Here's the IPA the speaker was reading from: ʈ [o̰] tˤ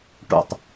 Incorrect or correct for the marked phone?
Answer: correct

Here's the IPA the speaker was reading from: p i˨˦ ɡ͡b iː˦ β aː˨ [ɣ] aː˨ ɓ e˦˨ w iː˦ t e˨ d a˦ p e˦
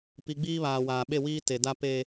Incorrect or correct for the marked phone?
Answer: incorrect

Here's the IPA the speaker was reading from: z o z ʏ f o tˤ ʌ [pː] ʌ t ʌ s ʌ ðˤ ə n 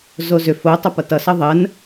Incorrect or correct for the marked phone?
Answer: incorrect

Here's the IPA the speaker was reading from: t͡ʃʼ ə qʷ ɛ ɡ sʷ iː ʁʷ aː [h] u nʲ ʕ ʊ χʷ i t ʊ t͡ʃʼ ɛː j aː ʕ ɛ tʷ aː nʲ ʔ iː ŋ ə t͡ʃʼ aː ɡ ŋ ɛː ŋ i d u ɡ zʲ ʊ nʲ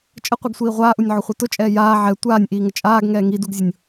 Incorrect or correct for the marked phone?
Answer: incorrect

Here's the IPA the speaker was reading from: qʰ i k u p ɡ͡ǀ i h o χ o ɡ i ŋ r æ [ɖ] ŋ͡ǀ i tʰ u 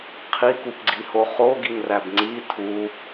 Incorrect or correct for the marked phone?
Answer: incorrect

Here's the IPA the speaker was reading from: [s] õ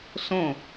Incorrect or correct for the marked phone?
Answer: correct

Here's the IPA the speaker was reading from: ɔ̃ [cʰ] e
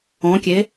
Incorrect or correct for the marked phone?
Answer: incorrect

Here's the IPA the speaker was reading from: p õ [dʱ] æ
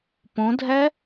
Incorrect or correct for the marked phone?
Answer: correct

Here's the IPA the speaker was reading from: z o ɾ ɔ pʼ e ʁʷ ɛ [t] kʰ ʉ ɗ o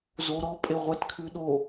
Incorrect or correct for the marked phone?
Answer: correct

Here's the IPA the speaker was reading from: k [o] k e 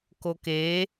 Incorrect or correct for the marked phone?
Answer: correct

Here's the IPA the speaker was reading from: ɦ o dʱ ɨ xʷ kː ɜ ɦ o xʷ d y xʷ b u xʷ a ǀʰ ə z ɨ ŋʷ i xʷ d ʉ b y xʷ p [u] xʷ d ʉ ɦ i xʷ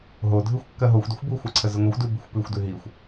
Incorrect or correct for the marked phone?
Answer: incorrect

